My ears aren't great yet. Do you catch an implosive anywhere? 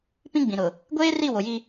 no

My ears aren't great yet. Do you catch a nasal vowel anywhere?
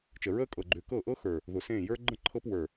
yes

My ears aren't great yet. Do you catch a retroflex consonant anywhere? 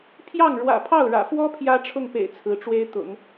yes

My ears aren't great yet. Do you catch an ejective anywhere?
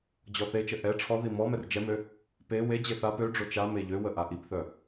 no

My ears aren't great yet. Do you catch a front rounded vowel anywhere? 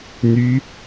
yes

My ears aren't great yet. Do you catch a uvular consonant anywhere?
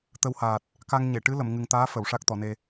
no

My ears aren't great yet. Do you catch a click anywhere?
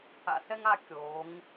no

